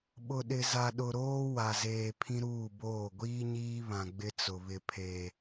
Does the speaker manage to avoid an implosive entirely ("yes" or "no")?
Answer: no